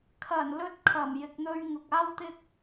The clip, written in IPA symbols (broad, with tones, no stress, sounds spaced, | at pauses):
kʰ ɐ˨˩ n l ɵ˧ t̚ kʰ ɐ˨˩ m j ɪ˨ k̚ n̪ ɵ˧ ɥ ŋ ʊ˨ k̚ aː˥ w t̪ ɪ˥ k̚